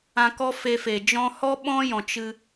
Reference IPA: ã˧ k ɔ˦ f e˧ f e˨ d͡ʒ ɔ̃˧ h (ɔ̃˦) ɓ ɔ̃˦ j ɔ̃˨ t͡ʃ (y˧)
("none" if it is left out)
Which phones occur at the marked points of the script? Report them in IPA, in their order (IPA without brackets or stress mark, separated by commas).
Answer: ɔ˦, ɨ˧